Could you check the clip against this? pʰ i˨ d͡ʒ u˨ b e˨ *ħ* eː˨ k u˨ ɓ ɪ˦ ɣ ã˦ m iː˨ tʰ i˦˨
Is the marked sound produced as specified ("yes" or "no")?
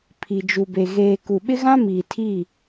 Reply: no